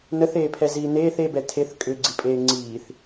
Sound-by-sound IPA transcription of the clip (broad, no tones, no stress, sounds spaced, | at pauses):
n ə θ eː pʰ ɛ z iː n eː θ e b ɛ tʰ e θ kʼ ʏ ɡ͡ǀ i pʼ eː ŋ͡ǀ iː θ